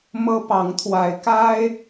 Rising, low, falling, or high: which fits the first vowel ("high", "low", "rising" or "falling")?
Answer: high